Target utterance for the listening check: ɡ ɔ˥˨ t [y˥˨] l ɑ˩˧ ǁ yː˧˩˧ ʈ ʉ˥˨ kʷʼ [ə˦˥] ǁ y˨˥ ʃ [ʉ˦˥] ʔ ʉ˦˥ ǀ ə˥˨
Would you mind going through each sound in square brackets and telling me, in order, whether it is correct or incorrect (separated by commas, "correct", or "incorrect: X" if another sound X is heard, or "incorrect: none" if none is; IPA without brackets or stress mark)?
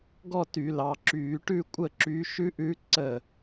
incorrect: y˧˩˧, incorrect: ə˥˨, correct